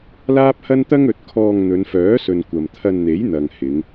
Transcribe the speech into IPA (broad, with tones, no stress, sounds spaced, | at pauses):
l aː˥ p̚ h ɐ˥ n t̪ ɐ˥ ŋ ɵ˨˥ t̚ kʰ ɔː˧ ŋ n̪ ɵ˨˧ n f œː˨˥ s ɵ˨ n kʷ ɐ˨ m t̪ʰ ɐ˧ n n̪ e˨˥ j n̪ ɐ˨ ŋ h ɪ˨˧ ŋ